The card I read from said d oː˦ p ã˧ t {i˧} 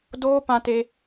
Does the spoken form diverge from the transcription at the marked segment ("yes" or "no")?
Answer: yes